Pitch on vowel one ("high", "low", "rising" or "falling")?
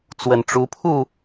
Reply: low